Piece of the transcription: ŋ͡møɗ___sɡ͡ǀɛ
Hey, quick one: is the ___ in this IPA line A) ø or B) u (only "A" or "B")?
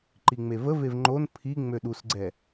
B